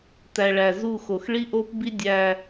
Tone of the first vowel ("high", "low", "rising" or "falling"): low